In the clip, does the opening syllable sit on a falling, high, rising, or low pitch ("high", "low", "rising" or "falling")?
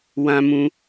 high